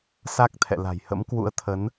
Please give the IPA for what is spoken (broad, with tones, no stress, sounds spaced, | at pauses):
s a˦˥ k̚ t̪ʰ ɛ̰˧˨ l a̤˨˩ j h ə̰˧˥ m k w ṵ˧˥ ə̯ t̪ʰ ə˨˦ n